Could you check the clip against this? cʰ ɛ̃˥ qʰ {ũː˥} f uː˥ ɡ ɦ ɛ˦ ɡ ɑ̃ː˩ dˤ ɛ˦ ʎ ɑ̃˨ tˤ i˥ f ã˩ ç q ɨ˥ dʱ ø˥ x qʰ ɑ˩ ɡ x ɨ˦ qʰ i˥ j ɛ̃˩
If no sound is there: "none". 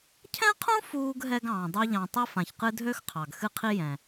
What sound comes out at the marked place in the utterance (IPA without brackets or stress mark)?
ũ˥